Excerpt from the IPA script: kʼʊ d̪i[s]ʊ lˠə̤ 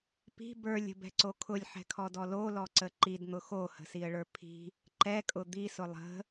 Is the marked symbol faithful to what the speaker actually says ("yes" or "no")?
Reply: yes